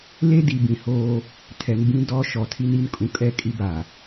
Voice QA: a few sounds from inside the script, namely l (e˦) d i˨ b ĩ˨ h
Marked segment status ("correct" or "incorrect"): correct